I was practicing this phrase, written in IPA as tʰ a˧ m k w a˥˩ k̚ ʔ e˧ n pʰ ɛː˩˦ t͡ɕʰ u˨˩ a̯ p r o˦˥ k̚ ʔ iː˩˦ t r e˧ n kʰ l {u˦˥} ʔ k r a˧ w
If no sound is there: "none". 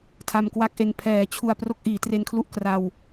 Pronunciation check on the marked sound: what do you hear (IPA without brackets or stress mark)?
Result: u˦˥